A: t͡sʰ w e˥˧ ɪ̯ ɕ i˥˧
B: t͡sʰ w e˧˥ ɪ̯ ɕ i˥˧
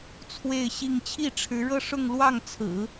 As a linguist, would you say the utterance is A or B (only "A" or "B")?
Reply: A